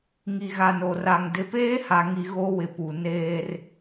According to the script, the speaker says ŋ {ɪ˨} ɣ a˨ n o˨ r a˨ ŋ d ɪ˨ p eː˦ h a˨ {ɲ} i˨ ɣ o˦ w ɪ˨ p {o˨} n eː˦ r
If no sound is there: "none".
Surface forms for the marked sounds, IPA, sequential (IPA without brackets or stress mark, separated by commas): i˨, ŋ, u˨